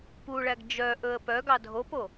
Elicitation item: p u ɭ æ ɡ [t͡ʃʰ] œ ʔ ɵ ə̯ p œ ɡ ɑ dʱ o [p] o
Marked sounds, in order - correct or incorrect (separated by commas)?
incorrect, correct